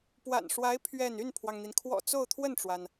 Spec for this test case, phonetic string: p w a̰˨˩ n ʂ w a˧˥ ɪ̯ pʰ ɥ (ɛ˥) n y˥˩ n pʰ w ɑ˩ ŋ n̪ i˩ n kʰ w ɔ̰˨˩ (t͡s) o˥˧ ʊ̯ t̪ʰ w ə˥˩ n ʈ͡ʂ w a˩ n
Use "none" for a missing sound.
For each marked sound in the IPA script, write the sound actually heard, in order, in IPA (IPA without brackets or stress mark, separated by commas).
ɛ˥˧, t͡s